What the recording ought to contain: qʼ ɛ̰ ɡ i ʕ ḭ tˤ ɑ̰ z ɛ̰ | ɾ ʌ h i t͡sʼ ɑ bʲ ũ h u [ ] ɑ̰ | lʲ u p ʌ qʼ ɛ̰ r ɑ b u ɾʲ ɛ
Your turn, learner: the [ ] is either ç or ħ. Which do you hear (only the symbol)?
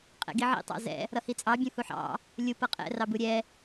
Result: ħ